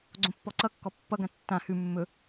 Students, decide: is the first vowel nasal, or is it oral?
nasal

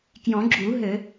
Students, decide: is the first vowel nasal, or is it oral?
nasal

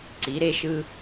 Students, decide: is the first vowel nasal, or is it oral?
oral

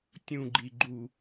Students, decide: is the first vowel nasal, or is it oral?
nasal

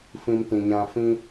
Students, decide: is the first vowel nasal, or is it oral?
nasal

